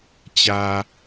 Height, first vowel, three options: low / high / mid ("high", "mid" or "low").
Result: low